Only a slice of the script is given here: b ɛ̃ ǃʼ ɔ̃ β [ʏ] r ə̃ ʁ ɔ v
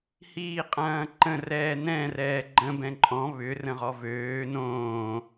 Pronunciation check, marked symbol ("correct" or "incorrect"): correct